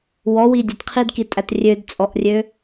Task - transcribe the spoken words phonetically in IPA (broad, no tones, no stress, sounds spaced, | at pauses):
w ɔ w i dʲ ə t qʰ i d k i tʼ æ t rʲ ø d t͡sʼ ɔ ʔ rʲ ø